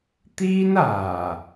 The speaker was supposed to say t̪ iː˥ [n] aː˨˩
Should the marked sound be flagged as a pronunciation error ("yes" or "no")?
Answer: no